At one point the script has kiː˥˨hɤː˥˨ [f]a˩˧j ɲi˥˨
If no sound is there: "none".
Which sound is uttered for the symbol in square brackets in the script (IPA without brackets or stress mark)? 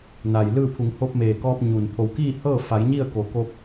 f